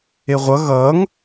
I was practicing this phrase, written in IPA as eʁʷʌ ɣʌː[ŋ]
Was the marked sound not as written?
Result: no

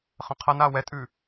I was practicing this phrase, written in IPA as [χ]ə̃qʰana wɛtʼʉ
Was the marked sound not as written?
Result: no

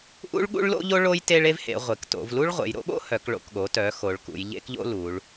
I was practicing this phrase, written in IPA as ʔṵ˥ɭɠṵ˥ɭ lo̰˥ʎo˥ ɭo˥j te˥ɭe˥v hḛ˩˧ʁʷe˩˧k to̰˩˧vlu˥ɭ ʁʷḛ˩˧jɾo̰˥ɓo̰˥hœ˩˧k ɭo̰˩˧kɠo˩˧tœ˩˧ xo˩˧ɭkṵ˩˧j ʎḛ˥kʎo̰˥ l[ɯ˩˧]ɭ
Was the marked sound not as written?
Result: yes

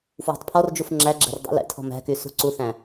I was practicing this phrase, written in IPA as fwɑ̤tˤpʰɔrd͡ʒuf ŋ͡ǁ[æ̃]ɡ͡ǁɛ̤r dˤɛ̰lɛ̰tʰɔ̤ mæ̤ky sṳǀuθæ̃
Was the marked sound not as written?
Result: yes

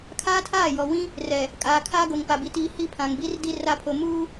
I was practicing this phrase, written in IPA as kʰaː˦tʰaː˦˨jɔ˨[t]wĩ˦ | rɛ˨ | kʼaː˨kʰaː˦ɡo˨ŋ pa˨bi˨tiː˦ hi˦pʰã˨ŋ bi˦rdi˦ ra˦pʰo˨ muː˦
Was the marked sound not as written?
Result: yes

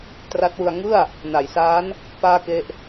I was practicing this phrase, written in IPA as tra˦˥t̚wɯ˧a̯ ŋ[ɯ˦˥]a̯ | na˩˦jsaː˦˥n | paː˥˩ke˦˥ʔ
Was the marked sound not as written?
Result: yes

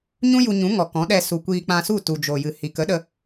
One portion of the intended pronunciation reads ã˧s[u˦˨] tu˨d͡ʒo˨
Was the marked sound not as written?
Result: no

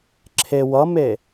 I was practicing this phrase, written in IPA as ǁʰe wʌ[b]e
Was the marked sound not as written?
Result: yes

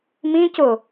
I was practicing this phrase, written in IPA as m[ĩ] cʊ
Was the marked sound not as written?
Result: no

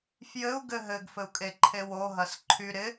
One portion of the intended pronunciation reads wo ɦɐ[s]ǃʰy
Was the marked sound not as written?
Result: no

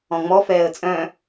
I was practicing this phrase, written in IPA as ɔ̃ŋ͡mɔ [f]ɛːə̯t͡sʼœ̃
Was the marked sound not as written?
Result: no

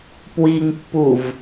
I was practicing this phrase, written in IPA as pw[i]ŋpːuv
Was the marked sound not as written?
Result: no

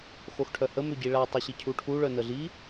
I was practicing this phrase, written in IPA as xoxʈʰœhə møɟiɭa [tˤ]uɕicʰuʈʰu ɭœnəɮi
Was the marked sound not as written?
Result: no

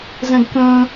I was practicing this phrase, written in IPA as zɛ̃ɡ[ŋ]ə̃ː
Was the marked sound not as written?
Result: yes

